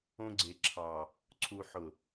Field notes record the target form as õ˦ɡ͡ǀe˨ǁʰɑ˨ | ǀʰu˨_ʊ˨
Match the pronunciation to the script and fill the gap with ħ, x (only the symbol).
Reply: ħ